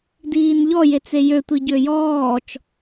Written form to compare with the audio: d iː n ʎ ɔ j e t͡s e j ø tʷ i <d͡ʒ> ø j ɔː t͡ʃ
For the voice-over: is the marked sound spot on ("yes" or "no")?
no